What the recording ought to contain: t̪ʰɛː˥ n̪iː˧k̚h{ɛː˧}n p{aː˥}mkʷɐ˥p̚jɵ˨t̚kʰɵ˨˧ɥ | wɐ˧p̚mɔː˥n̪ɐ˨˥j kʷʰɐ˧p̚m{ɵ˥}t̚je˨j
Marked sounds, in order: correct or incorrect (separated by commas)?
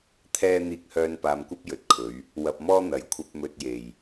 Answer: incorrect, incorrect, incorrect